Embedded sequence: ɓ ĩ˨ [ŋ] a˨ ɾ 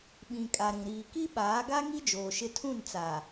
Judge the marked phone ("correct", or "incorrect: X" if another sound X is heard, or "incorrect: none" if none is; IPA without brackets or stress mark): incorrect: kʼ